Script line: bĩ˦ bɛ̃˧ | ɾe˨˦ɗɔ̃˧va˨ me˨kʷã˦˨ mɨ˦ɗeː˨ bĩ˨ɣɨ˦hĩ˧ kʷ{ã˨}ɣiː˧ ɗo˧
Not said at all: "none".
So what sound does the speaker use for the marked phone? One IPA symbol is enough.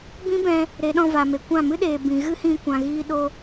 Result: ã˨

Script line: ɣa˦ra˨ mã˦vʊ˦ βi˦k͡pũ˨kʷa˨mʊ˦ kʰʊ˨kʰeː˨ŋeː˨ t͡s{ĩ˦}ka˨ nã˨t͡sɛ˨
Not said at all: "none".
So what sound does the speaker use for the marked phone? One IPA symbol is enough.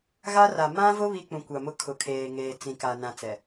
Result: ĩ˨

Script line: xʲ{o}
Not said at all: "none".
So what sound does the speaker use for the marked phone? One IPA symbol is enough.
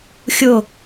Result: o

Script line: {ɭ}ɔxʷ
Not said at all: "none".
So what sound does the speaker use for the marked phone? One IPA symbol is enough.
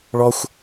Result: ɭ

